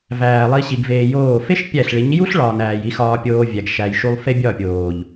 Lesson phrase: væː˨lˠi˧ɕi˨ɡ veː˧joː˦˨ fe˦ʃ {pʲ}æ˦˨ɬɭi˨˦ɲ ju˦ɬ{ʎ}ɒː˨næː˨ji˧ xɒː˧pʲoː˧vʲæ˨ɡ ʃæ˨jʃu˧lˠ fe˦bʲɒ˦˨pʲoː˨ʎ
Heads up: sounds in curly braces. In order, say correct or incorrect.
correct, incorrect

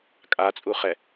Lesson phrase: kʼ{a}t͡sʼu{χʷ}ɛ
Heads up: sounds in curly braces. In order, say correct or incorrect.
correct, incorrect

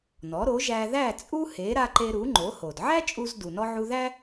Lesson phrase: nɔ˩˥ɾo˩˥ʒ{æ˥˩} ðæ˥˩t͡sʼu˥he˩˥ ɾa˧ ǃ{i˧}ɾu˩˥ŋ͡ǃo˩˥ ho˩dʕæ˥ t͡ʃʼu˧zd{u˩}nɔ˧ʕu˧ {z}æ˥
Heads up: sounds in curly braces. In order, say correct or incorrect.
incorrect, incorrect, correct, incorrect

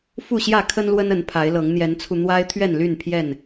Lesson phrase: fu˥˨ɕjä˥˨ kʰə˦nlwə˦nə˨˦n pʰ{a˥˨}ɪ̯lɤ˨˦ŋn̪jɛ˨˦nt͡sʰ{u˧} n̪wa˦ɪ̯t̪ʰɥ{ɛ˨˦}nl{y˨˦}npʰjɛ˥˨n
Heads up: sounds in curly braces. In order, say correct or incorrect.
incorrect, correct, incorrect, incorrect

